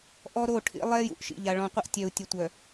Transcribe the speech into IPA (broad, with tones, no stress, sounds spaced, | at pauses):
ʔ ɔ˦ ɾ o˦˨ ʈʰ ḭ˦ lˠ ɛ˦ j ṵ˨ ʔ ʃ ḭ˨ ʎ a˨ ɭ ɔ̃˨ qʷ ə˦ ʔ tʲ œ˨ u̯ tʲ ə˨ tʷ œ˨